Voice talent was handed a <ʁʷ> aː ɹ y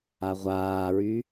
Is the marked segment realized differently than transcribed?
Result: no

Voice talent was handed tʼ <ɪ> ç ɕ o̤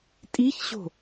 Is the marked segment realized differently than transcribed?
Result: yes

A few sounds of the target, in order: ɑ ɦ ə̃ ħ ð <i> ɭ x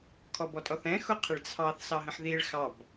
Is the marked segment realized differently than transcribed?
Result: no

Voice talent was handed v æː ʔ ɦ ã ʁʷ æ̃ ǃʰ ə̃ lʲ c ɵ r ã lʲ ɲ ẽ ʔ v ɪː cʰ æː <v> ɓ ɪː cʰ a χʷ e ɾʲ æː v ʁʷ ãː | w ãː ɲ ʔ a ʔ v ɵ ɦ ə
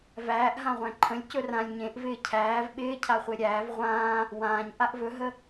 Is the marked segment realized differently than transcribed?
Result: no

